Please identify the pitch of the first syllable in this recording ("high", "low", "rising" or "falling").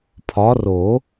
rising